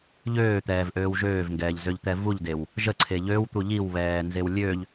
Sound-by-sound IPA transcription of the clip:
ʎ øː t̪ ɛː v ʔ øː w ʒ øː v ŋ ɡ ɛː ʎ z ø ʎ t̪ ɛ v u ʎ d e w | ʒ ə ǀʰ e ʎ ø w t̪ u ʎ i w β ɛː n z e w lʲ ø ʎ

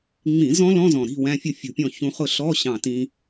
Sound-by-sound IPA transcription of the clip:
ŋ͡m ĩ˧˩˧ z ɔ̃˦˥ l ɔ̃˧˥˧ z ɔ̃˧˩ ɾ i̤˧˥˧ w æ̃˧˥˧ fʲ ʊ˥˨ fʲ ṳ˧˩ pʲ ɔ̃˥˨ ç ũ˧ χ ʊ˥˨ ɬ ɔ˧˥˧ ɕ ɑ̃˧˩ t ĩ˧

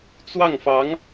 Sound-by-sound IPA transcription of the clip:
t͡s w ɑ˥˩ ŋ f ɑ˧˥ ŋ

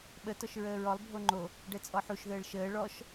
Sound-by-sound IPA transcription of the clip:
ɓ ə t ɔ ʃ ɹ əː ɹ ɔ lˠ bʱ o ŋ͡ǃ o | ɖ ɛ t͡sʼ ɔ ħ u ʃ ð əː ɭ ʃ əː ɭ ɔ ʃ

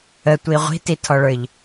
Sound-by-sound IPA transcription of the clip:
ə tʷ i ʁʷ i̤ t i tʰ ɔ ɭ ə˞ ʎ

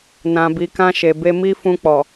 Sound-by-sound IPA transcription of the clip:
n ã˨ b i˨ k ã˧ ʃ e˨ b e˧ m i˦ f ũ˧ k͡p ɔ˨

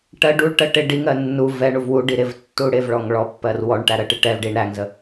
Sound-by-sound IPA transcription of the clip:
ʈ ɜ ɖ u ɭ ʈ ɜ ʈ ɪ ɖ i ŋ ɜ nː u v ɛ ɳ u v w u ɖ i ɾ ɪ v tː u ɽ ɪ v ɭ ɔ ŋ ɭ ɔ pː ɜ r w ɔ ɳ ʈ æ ɾ ɜ ʈ ɪ ʈ ɛ v ɖ i ɳ ɾ æ ŋ z ə

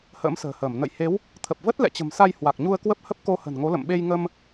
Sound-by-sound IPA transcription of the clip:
h ə̰ː˧˥ m s ə̤ː˨˩ h əː˧˩ m n ə̰˧˨ j h e˨˦ w | t̪ʰ ə˨˩ p̚ v ə˦˥ t̚ l ɛ̰˧˨ t͡ɕ ə̤˨˩ m s a˧ j h w a˨˩ k̚ ɲ u˧ ə̯ k w ə˦˥ p̚ h ə˦˥ p̚ k o˧ h ə̤˨˩ n ŋ o˨˦ l ə̰˧˨ m ɓ e˧ j ŋ ə˧ m

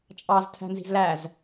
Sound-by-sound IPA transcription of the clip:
t͡ʃʼ ɑ z tʰ æ̤ n z i̤ z l æ z

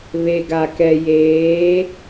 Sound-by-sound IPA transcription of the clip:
β e˨ ɡ a˨ k ɛ˨ j eː˨˦

